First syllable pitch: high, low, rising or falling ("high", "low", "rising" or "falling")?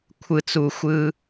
low